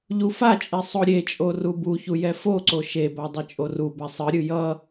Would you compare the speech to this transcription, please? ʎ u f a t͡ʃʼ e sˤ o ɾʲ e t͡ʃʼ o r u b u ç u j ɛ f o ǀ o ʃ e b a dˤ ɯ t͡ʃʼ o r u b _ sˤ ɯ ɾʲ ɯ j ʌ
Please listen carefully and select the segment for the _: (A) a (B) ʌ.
A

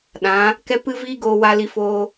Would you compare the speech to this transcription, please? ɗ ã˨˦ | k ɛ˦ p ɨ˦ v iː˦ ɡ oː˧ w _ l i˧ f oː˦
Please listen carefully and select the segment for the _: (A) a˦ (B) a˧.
B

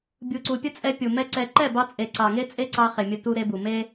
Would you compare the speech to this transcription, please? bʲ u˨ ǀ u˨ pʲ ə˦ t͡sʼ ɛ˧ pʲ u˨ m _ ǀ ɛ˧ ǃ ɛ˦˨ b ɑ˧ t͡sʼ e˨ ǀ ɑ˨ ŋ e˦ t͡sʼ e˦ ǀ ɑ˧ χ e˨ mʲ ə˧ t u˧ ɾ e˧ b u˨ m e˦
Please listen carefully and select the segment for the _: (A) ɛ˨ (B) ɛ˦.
B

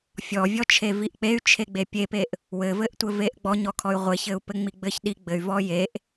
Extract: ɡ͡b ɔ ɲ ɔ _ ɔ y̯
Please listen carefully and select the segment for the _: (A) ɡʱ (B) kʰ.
B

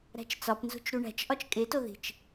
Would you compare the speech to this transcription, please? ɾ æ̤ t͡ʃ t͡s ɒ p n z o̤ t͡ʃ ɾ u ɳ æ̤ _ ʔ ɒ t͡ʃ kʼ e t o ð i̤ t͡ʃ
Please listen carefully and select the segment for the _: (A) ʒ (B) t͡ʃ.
B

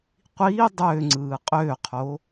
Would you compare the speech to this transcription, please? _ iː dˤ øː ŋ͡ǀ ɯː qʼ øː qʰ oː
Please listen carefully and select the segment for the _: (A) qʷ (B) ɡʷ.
A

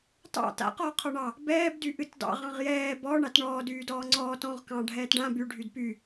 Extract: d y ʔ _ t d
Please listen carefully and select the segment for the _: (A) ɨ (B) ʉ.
A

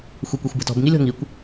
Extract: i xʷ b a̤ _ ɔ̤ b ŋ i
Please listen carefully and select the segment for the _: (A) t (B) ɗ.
A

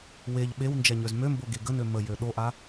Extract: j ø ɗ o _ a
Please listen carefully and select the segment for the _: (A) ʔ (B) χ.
A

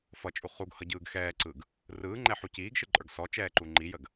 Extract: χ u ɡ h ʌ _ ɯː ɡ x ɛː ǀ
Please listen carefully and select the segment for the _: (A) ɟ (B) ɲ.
A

